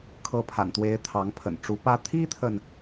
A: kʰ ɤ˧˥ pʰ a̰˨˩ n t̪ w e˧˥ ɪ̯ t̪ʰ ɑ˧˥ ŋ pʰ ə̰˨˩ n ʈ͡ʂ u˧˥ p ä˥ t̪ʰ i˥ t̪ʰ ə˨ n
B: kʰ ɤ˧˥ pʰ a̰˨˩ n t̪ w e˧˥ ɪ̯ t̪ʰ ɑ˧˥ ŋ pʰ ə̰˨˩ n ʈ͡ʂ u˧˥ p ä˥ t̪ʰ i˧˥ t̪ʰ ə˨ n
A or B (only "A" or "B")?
A